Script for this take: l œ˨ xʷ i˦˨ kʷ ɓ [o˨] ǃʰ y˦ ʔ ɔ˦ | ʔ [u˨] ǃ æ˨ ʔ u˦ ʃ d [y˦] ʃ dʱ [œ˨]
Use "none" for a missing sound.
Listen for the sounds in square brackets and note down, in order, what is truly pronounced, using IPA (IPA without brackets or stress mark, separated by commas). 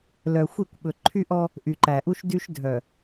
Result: ɵ˨, y˨, y˦, œ˨